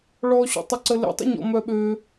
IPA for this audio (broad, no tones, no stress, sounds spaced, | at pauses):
ɭ ɔ ɕ ɔ̰ tˤ ʊ ǀ ə l ḛ tˤ ə̰ ɲ ɔ̰ m œ ɓ ø